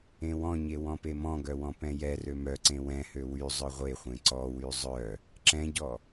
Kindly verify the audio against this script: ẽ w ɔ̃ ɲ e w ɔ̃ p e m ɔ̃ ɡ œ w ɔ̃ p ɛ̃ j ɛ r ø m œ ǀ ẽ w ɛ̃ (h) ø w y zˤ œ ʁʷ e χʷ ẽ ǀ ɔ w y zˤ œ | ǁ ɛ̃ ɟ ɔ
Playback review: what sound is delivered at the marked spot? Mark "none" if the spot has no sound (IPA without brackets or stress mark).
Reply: h